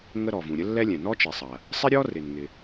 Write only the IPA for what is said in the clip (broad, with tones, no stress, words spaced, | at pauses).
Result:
ŋə˥ ɾɔ˩vũ˩ ɾʲə˥lːɛ˥lʲɛ̃˩ nɔ˥t͡ʃi˩sˤɐ˩ | sˤɪ˥ɾʲɔ˥rɪ˩nŋɪ˩